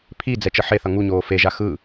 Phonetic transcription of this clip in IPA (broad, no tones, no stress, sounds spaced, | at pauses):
pʰ i d͡z ɛ t͡ʃ ʌ ħ e θ ʌ ŋ u ɲ oː f e ʒ a x ɯ